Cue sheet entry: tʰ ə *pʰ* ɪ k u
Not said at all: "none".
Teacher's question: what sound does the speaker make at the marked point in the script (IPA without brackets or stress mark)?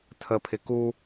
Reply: pʰ